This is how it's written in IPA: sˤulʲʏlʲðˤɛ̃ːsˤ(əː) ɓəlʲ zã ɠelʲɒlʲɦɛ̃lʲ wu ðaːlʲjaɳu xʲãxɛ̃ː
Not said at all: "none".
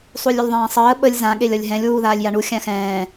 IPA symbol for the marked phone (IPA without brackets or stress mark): əː